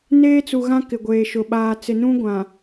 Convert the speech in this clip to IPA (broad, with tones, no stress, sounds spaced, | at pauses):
n eː˦ t͡s u˨ ɣ ã˦ k ɪ˨ ɡʷ eː˨ ʃ ʊ˨ ɓ aː˨ t͡s ɪ˨ n ũ˦ ɡʷ ã˨